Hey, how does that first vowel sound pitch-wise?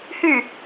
falling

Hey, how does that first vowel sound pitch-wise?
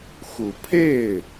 low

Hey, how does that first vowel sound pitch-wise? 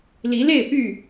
rising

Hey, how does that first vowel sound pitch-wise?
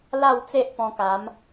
falling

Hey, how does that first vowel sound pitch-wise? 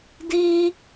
high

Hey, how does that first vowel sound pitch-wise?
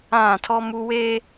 falling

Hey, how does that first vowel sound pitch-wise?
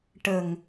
low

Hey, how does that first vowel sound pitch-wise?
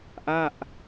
falling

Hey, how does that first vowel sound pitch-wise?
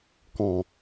low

